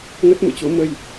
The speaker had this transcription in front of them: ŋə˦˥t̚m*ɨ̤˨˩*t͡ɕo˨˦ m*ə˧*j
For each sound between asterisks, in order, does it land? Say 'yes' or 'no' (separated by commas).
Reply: no, yes